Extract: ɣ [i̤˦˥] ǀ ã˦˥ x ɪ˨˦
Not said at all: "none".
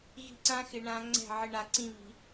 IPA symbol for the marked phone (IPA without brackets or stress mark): i̤˦˥